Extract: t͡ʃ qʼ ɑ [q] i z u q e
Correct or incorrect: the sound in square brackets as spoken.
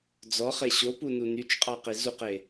correct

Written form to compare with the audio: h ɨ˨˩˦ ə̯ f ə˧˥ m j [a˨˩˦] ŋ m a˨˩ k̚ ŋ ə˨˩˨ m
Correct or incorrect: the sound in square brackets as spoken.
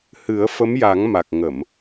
correct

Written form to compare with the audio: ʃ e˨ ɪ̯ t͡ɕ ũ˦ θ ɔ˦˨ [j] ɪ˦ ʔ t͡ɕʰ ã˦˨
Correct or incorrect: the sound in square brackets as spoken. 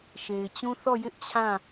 correct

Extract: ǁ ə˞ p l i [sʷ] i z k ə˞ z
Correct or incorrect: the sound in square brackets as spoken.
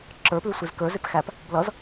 correct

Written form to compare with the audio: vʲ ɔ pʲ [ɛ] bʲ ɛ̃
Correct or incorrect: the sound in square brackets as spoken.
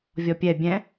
correct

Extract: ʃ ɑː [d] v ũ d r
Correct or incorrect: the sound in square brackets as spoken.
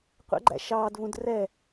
correct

